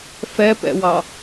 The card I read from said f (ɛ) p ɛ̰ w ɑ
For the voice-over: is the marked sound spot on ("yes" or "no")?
yes